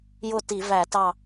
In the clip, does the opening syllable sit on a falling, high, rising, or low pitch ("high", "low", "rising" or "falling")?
falling